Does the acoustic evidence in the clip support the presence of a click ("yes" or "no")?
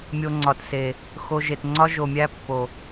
yes